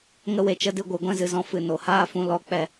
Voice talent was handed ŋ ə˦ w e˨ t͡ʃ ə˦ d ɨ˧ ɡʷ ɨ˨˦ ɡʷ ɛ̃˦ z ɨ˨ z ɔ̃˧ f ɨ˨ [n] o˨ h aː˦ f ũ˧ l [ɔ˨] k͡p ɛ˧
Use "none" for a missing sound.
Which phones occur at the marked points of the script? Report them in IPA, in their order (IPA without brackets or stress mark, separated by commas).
n, ɔ˦˨